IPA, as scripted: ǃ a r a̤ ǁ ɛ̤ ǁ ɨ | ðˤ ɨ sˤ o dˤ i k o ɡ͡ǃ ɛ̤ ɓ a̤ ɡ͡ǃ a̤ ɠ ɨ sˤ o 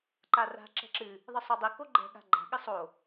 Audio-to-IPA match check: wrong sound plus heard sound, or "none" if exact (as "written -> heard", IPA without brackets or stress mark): ɓ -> ɠ